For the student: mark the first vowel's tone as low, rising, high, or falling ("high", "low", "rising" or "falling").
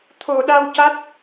low